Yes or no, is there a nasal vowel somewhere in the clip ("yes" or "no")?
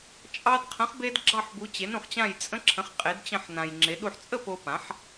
yes